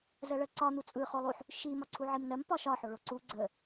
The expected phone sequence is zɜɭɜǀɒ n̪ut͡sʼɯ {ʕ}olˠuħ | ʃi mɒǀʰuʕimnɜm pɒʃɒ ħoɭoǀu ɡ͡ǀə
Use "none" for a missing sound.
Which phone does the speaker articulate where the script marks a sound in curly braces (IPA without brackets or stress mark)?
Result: χ